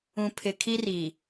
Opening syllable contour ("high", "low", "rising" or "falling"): low